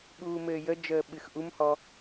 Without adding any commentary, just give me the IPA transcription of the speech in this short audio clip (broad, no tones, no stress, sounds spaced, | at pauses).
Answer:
ɓ uː m ɘː j ə d͡ʒ əː ɓ ɨ x ʔ u m h ɔ